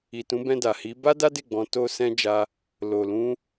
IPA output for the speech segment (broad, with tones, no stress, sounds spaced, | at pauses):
i˨ t ũ˨˦ b ɛ̃˧ d a˨ h i˨˦ b a˦ d a˦ d e˦˨ ɡ͡b ɔ̃˧ t o˦ s ɛ̃˦ d͡ʒ a˦ | l o˨ l ũ˧